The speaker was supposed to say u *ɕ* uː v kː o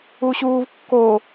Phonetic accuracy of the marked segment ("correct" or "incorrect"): correct